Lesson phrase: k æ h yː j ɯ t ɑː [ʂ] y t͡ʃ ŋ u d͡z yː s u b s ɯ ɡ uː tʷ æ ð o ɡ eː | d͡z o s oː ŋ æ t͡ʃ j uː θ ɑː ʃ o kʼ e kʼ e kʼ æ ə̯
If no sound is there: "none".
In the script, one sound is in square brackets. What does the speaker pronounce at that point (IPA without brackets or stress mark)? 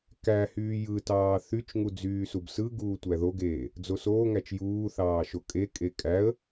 θ